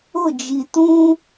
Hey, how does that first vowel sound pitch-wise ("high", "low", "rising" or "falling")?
falling